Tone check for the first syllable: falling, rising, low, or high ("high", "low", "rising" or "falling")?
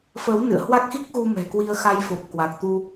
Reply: rising